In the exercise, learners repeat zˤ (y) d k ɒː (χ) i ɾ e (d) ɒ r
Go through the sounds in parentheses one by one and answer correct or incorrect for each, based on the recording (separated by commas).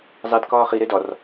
incorrect, correct, correct